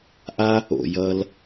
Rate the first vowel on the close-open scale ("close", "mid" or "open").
open